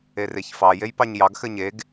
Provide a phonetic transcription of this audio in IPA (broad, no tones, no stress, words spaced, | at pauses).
ereçfɑ jejpɑɲjɑɡ xɘɲeɡ